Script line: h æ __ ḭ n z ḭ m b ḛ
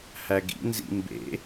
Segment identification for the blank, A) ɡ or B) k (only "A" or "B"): A